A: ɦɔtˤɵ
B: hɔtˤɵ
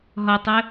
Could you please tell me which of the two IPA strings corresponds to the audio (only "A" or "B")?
A